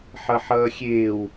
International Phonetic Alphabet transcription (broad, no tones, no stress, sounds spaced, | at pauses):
ħ ʌ ħ ʌː xʲ eː w